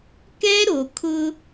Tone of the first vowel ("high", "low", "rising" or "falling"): high